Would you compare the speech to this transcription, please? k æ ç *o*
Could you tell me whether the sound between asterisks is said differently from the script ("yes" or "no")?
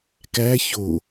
no